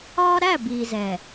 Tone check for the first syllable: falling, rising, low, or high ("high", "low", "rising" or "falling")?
high